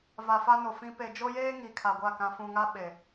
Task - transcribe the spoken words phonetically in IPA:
v a˨ f a˦ n o˨ f ĩ˦ p e˨ d͡ʒ o˦ j eː˦ ŋ i˨ kʰ a˨ ɡʷ a˦˨ k ã˨ f ũ˨ ŋ a˦ ɓ e˨

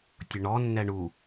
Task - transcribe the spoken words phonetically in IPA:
tʲ ʊ ɳ ɔ nː ɛ ɳ u

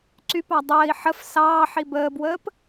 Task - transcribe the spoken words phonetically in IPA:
ǀ y p ɑ dˤ əː i̯ ħ ə f s ɑː ħ i b əː b w əː p

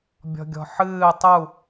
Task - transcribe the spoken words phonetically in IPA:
bʲ ɔ̤ ɡʲ ɔ̤ ħ ɨː tˤ u

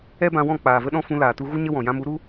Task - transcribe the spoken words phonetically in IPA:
ɛ˦ b ã˧ w ɔ̃˦˨ k͡p aː˨ v ə˦ ɗ ɔ̃˦ f ũ˧ l aː˨ t u˧ ɣ u˦ ɲ ə˦ w ɔ̃˨ j ã˧ m u˨˦ ɾ u˦

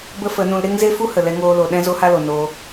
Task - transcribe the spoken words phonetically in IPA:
b ə˦ f ə˨˦ n ũ˧ l ɾ e˦ ŋ z e˦ f u˦ h ə˨ l ɛ˧ ŋ oː˧ l o˨ ɗ ɛ̃˦ z o˦ h a˦ l o˨ n o˧

